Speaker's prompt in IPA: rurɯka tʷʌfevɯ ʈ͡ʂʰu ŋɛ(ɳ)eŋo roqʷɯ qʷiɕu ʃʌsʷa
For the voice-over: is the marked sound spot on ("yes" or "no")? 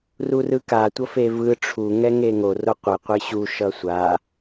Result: no